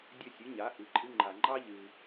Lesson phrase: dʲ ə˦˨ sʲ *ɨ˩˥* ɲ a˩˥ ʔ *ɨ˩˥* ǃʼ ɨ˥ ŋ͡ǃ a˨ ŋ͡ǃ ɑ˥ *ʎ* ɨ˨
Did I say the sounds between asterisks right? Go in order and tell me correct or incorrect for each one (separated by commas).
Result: correct, correct, correct